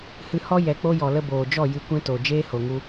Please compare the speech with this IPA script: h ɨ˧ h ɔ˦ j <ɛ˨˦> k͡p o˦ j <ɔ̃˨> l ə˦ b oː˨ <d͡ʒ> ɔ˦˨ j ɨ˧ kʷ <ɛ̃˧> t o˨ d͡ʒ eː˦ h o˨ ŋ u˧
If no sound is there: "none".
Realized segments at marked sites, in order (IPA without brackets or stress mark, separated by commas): ɛ˨˦, ɔ˨, d͡ʒ, ɛ̃˦